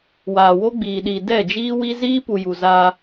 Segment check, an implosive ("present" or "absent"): present